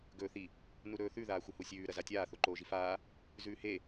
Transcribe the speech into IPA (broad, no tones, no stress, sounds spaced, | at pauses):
ɡ ɵː θ i | n u ɾ ɵː θ ʉ ð aː xʷ ɐ h u sʲ ʉː ɾ ɐ z a tʲ aː θ o ǃ oː ʒ i f aː | z ʉː h e